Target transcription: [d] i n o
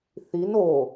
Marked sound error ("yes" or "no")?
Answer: yes